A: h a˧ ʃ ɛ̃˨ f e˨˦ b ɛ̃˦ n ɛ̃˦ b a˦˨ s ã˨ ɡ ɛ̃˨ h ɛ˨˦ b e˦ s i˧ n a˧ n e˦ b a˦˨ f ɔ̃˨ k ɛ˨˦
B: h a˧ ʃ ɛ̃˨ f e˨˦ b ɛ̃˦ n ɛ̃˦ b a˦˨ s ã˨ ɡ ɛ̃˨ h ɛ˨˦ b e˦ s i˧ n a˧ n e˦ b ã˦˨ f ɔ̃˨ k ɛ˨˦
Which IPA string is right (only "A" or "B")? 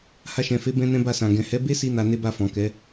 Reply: A